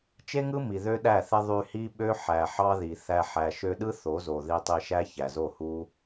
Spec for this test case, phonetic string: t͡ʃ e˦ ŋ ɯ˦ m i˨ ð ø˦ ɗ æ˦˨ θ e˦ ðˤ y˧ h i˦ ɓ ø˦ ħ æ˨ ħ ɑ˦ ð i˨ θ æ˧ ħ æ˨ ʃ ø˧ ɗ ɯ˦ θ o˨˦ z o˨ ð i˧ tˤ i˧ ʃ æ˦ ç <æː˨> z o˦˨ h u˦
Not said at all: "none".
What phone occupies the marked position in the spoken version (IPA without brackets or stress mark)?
æ˨